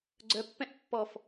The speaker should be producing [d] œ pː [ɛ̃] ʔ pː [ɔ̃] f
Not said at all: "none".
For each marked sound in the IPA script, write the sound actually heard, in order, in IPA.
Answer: ɡ͡ǀ, ɛ̃, ɔ

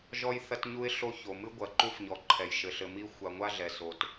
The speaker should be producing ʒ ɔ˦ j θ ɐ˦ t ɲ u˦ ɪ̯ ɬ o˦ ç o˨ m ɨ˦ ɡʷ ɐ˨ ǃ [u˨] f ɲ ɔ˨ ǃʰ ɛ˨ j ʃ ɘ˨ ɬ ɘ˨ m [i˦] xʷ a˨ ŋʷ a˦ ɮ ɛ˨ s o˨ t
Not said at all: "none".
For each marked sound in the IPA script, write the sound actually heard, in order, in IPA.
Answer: u˦, i˦

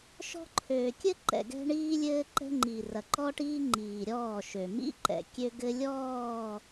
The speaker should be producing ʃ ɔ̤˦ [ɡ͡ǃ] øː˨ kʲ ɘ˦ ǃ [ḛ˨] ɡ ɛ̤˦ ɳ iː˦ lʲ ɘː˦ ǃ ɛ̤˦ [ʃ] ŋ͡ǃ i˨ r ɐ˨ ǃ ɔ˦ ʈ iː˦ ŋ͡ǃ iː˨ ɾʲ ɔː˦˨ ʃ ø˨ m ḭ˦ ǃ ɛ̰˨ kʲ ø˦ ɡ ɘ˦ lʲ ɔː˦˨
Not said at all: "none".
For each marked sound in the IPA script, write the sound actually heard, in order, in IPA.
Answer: ǃʰ, ɛ̰˨, none

